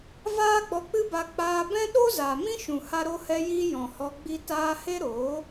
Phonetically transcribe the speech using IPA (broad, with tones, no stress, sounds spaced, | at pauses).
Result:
v aː˦ ɡ͡b ɔ˧ k͡p ɨ˦ b a˧ k͡p aː˧ b ɛ̃˦ ɗ o˦ z aː˨ m ĩ˦ ʃ ũ˨ h a˦ ɾ o˦ h ɛ˦ j iː˦ j ɔ̃˨ h ɔ˧ ɡ͡b i˦ t aː˦ h e˦ ɾ oː˨˦